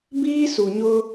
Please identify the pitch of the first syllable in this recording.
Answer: high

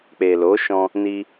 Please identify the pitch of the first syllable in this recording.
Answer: low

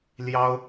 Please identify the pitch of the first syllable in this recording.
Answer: high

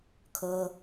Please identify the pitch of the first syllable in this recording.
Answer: high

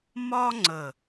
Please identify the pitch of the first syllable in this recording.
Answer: high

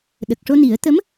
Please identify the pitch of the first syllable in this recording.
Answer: low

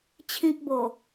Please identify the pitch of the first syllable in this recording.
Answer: high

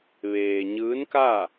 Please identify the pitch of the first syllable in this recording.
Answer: low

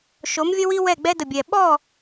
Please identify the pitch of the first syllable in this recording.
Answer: rising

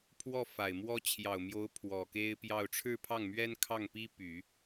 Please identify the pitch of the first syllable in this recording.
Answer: falling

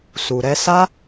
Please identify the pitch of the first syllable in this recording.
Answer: low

